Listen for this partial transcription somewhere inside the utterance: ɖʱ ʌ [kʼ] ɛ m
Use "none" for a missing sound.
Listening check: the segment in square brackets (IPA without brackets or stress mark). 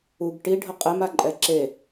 qʼ